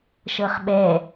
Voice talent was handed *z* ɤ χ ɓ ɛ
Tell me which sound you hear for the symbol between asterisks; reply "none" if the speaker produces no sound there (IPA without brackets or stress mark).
ʃ